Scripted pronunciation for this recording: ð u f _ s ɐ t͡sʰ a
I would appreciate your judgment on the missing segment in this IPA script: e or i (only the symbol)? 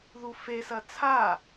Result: e